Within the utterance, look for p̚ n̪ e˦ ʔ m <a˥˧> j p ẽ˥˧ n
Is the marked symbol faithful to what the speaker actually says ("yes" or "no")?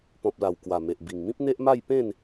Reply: yes